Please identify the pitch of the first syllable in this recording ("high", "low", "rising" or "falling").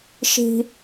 high